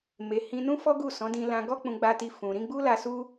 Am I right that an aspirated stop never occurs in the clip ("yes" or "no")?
yes